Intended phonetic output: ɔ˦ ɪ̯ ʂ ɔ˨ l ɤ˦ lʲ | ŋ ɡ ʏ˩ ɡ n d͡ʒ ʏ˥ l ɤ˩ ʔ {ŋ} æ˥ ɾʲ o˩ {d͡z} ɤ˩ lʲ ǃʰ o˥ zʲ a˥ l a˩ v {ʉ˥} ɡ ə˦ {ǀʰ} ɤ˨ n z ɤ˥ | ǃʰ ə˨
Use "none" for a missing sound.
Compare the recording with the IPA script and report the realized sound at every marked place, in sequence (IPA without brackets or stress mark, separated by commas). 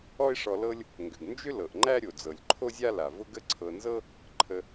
ŋ͡ǃ, d͡z, ʊ˥, ǀʰ